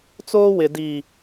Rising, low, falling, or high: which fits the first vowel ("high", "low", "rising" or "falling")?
high